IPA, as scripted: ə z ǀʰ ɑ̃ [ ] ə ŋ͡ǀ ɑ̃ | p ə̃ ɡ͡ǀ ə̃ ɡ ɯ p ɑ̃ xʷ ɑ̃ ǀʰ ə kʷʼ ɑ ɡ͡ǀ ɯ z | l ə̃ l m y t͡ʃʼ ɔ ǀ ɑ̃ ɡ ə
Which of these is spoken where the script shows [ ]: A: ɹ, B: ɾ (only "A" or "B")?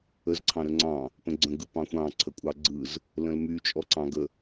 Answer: B